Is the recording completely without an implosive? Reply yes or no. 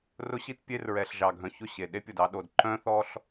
no